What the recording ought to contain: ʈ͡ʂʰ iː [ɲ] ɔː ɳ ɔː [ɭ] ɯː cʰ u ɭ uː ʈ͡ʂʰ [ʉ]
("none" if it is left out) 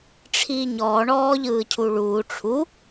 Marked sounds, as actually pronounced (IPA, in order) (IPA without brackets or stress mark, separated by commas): ɲ, ʎ, u